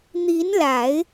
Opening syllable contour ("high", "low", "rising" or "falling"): rising